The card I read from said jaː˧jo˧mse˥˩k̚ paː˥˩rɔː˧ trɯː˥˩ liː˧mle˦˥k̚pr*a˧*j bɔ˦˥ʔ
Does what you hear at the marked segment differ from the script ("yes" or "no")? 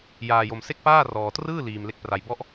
no